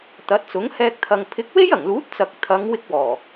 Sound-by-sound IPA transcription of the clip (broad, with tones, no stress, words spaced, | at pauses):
t̪ɐ˨˥t̚t͡sʊ˨˥ŋ hɛː˧k̚t̪ʰɐ˨ŋ pʰɪ˨˥k̚we˥jɐ˨˩ŋluː˨˥t̚ t͡sɐ˨k̚t̪ʰɐ˨˧ŋ wɪ˥k̚wɔː˨˩